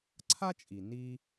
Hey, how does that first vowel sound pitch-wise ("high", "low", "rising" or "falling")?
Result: high